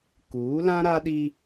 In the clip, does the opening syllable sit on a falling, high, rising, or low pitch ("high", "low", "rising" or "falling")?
rising